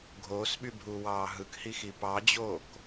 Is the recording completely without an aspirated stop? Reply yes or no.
yes